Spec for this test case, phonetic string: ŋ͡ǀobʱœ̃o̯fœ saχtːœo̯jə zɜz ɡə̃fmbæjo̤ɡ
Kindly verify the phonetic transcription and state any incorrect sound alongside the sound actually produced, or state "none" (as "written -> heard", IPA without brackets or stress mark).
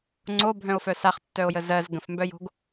æ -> œ